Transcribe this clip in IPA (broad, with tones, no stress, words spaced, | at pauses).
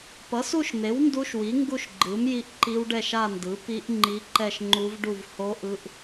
pʌ˩˥su˥˧ʃn̪e˩˥w ndu˦˥ʃwi˩˥ ŋɡu˥˧ʃɡ͡ǃɯ˩˥mji˦˥ʔ ǃi˦˥wɖɛ˥˧ʃa˥˧ndɯ˩˥ pi˦˥ʔ ŋ͡ǃi˦˥ ǃɛ˥˧ʃŋ͡ǃu˦˥vɖu˥˧v ho˦˥ʔɯ˦˥ʔ